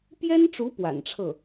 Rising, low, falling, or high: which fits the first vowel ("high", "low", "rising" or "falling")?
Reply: high